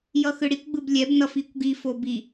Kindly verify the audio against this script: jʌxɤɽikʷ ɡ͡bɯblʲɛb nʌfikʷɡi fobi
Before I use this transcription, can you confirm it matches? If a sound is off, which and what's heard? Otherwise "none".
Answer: ɤ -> ɯ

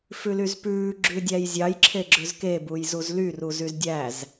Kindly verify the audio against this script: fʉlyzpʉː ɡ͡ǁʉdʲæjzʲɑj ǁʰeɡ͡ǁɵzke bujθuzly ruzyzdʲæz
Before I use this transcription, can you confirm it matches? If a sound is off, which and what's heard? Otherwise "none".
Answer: θ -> z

